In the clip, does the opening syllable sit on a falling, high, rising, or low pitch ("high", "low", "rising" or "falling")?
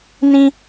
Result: high